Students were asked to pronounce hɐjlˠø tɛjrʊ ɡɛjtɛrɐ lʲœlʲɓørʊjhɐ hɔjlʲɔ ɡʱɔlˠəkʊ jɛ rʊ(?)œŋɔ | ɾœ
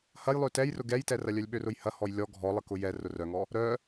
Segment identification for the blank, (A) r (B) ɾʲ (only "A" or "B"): A